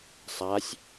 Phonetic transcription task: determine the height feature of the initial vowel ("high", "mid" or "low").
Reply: low